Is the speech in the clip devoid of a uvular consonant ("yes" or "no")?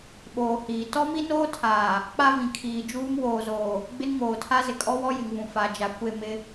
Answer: yes